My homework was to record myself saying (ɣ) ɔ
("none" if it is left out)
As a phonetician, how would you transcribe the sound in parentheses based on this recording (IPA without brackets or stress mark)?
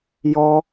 j